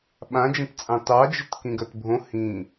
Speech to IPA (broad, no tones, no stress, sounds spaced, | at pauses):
ɓ ã d͡ʒ ə̃ t t͡sʼ ɑ̃ t ɑ d͡ʒ ə t k ĩ ɡ ɜ t bʱ õ h ĩ